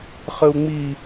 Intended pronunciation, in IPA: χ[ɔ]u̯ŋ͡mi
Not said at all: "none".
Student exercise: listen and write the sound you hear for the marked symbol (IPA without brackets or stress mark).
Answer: ə